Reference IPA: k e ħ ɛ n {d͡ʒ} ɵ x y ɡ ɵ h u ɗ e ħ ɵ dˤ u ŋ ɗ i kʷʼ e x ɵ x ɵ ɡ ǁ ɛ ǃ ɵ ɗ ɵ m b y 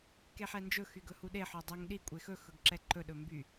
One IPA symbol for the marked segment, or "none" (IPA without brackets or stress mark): d͡ʒ